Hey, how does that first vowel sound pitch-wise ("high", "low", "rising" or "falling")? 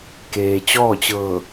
low